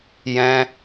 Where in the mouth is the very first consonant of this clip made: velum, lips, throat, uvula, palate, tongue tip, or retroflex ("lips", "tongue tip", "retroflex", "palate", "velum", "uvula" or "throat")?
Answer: palate